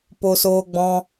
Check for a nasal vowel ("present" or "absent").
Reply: present